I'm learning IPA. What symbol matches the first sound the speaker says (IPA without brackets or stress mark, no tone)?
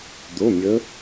d̪